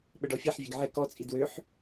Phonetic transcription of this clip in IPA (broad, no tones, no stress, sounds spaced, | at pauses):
ɓ ə ɖ ɔ fʲ ɛ ħ vʲ e ɡ ʕ ɛ k ɔ t͡sʼ i d w ø ħ